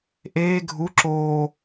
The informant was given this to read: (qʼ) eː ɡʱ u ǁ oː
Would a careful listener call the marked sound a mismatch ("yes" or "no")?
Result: yes